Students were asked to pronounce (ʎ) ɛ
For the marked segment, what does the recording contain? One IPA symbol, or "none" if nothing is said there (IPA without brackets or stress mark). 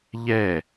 ʎ